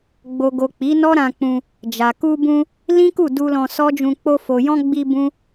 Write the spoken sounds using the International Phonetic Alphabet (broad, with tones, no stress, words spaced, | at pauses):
ɡ͡bo˨ɡo˨ k͡pi˨˦nɔ˦ɾã˧k͡pũ˧ | d͡ʒa˨ ku˧bũ˧ | lĩ˦ku˦˨du˧ lɔ̃˧sɔ˦d͡ʒũ˧ k͡po˧ fo˨jɔ̃˧ ɡ͡bi˧ bũ˦